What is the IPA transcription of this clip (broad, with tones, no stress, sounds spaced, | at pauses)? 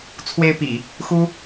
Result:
t͡sʰ w e˥ ɪ̯ p ḭ˨˩˦ | x u˥